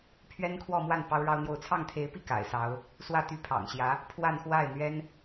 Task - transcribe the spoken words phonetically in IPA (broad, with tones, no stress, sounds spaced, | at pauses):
pʰ ɥ ɛ˥ n kʰ w ɔ˥˧ m w a˥˩ n p ɑ˥ ʊ̯ ɻ ɑ˥ ʊ̯ n̪ j o˥˧ ʊ̯ t͡sʰ ɑ˥˩ ŋ t̪ʰ e˧˥ ɪ̯ p i˥˩ k a̰˨˩ ɪ̯ s ɑ˧˥ ʊ̯ | s w ä˥˩ t̪ y˥ pʰ ɑ̰˨˩ ŋ ɕ j ä˧˥ | pʰ w a˥˧ n x w a˥˩ ɪ̯ n̪ ɥ ɛ˥ n